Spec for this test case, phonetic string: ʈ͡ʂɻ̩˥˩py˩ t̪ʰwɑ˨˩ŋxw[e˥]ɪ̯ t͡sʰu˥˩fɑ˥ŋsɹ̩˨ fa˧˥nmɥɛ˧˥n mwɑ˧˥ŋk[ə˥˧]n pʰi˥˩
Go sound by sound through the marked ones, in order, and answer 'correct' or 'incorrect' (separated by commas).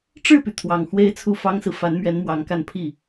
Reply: correct, incorrect